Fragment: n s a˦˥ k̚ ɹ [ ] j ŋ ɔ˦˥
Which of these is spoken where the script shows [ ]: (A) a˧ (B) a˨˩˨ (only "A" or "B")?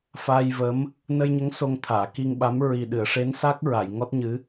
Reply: B